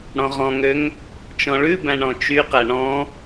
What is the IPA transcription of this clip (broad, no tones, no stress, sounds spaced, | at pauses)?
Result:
ɽ ɔ̃ ʁ ɔ̃ ŋ ø ŋ | t͡ʃ ɔ̃ ɭ ʉ b æ̃ ɳ ɔ̃ t͡ʃ y q æ ɳ ɔ̃